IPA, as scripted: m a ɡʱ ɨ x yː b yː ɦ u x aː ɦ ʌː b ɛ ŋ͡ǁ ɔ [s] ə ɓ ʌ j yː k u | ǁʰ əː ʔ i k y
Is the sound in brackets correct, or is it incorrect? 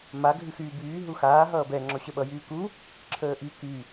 incorrect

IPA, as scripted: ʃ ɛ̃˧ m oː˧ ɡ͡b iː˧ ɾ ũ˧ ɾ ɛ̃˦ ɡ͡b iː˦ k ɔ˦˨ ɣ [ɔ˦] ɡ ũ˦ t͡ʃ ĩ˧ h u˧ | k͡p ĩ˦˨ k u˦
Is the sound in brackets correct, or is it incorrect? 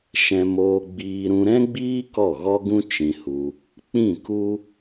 correct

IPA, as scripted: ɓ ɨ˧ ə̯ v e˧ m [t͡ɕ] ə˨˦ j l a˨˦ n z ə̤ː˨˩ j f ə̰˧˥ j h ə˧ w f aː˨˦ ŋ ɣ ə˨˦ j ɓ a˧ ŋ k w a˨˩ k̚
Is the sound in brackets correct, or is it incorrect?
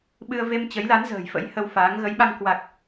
correct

